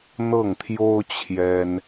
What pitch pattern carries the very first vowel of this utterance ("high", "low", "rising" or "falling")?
falling